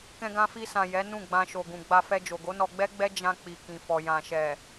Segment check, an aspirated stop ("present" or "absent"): absent